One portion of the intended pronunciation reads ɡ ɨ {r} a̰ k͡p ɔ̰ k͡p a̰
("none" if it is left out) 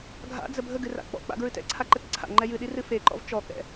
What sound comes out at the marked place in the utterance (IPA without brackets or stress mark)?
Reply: r